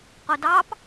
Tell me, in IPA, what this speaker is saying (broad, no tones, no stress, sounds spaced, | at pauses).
q o d ɑ p